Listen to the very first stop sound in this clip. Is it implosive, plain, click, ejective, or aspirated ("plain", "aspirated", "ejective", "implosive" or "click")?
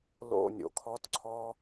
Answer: aspirated